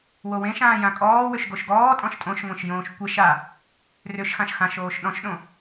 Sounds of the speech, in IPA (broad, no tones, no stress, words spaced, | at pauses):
wowẽʃãː jãkʼɔːwʏʃ ɡoʃɡɔː tʼɔ̃ʃtʼõʃŋʷẽʃ jõːʃkʷeʃ a | rʏʃxãʃ xãʃ oːʃɗɔ̃ʃɗõ